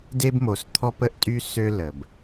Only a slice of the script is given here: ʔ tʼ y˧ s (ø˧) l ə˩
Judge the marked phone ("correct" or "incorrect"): correct